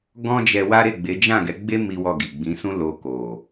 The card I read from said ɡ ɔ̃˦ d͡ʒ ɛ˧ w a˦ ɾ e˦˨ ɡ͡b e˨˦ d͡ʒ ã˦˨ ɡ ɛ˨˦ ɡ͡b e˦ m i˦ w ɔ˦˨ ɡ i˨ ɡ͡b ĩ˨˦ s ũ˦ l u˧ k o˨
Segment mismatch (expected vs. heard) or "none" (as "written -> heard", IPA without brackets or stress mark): u˧ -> o˧